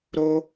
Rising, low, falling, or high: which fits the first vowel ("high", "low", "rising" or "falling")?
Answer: high